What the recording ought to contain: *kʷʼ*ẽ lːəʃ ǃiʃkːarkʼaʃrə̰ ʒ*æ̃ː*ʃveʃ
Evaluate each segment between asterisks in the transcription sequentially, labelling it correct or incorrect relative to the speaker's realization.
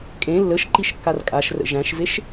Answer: incorrect: kʼ, incorrect: æ̃

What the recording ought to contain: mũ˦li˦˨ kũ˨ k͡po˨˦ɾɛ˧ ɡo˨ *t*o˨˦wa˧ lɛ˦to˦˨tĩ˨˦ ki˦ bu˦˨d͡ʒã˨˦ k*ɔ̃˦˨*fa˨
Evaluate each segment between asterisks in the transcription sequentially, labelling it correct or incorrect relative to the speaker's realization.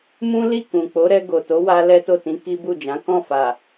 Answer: correct, correct

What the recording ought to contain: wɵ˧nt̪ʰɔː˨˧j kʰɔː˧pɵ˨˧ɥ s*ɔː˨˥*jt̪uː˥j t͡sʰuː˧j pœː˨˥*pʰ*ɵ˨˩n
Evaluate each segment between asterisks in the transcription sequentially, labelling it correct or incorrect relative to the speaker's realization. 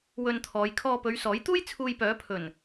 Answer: correct, correct

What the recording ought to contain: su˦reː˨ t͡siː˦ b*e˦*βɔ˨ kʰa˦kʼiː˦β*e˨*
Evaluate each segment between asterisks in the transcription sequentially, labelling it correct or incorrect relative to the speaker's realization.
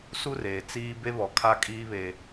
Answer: correct, correct

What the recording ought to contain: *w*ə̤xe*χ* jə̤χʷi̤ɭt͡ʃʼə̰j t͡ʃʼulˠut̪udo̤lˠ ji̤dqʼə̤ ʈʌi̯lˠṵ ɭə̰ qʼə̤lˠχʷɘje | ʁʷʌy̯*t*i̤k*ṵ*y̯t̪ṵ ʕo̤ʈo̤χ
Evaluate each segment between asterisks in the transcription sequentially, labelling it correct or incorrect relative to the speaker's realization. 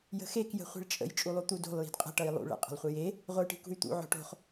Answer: incorrect: j, incorrect: k, incorrect: ʈ, incorrect: ṳ

